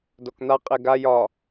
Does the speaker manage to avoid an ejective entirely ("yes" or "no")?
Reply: no